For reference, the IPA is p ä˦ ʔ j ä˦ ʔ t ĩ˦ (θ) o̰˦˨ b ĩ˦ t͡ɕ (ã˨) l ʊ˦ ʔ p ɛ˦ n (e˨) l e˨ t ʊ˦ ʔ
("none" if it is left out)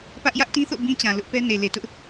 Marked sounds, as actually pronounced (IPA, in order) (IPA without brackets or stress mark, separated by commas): θ, ã˨, e˨